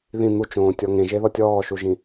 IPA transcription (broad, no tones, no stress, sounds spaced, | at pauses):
ð ĩ n̪ u t͡ʃ õː tʲ ɔ ŋ ẽ ʒ e ð ɔ tʲ ɔː ʃ u ʒ ĩ